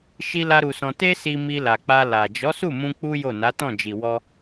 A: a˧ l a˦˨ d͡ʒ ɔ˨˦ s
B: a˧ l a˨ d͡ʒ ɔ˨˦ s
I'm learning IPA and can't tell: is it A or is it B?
B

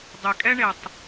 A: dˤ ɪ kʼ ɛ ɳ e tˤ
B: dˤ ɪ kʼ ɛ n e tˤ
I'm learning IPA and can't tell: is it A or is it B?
A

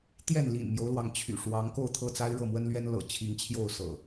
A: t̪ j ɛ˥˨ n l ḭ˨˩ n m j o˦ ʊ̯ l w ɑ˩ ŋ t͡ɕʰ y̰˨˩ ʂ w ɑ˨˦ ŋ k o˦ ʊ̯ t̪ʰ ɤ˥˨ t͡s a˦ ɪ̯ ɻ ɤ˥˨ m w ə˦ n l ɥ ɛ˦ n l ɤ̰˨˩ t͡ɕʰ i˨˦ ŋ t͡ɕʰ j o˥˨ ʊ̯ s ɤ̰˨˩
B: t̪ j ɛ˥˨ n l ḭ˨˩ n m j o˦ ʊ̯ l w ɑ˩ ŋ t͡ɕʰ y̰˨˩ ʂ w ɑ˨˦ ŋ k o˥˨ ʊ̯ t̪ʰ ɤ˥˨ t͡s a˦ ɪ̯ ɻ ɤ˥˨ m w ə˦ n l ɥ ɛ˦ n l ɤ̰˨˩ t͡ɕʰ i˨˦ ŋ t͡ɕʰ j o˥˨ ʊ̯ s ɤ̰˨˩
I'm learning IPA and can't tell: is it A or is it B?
B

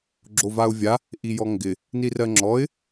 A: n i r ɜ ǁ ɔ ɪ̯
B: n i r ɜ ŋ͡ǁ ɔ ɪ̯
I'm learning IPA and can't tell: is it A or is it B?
B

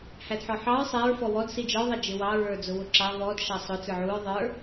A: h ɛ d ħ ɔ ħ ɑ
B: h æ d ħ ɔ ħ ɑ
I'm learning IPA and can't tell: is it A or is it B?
B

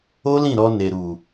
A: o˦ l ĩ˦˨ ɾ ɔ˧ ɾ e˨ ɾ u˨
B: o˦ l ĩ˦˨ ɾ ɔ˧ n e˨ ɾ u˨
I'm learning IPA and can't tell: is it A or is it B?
B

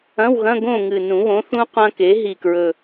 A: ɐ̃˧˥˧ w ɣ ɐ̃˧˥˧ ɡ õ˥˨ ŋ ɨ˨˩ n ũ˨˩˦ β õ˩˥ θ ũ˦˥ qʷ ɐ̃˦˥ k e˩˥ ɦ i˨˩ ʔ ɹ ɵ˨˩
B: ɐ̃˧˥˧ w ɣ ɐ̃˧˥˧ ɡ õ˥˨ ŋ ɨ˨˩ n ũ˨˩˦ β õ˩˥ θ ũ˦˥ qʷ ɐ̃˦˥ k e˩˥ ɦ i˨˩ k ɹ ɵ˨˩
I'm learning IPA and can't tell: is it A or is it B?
B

